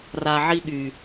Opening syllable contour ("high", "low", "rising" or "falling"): low